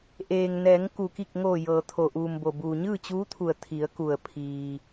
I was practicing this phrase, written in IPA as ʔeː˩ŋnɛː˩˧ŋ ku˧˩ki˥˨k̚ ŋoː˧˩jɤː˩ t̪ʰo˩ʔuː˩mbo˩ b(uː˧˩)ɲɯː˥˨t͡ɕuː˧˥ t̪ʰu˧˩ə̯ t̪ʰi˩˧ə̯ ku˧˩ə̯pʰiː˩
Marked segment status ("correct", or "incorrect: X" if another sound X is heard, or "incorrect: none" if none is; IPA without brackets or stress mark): incorrect: uː˩